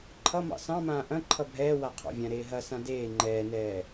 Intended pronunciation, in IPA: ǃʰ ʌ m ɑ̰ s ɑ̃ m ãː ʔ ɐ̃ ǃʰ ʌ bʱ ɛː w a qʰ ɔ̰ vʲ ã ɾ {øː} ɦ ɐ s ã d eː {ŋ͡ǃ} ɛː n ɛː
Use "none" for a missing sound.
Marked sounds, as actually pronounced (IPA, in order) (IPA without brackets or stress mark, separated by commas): eː, ŋ͡ǃ